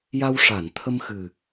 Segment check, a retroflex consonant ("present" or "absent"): present